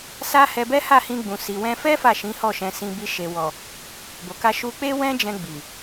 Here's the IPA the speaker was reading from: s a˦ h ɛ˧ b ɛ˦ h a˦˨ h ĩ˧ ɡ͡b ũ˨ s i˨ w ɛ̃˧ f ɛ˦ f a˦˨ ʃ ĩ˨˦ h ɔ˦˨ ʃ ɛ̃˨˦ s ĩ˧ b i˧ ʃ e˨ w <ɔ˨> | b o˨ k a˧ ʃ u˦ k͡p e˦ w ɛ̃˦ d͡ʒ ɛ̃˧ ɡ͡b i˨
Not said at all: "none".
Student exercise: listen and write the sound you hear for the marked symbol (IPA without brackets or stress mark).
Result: ɔ˨